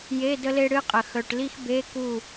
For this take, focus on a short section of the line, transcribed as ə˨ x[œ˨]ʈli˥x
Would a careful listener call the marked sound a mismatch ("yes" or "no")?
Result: no